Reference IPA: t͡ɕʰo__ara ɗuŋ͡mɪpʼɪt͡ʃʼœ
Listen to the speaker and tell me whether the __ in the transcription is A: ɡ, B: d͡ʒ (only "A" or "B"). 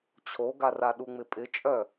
A